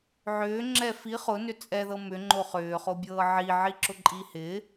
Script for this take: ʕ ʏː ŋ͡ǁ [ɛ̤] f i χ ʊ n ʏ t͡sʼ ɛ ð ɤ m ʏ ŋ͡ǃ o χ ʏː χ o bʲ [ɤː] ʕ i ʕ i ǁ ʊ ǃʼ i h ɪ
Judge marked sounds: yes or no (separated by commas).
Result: no, yes